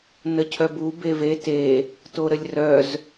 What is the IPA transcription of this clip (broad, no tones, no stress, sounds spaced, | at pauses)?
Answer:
n ə cʰ œ b u b e v e t e | t o ɾ ə lʲ r œ z